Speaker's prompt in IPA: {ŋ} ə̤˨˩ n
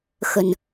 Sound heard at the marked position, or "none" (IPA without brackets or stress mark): x